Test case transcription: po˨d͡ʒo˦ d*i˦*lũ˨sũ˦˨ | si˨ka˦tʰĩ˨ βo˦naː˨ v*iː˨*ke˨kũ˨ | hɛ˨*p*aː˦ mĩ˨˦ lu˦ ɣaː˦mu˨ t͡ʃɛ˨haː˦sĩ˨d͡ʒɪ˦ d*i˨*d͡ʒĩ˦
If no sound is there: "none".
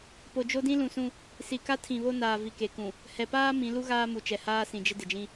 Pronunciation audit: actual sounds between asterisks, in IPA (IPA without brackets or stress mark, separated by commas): ĩ˦, i˨, p, ɪ˨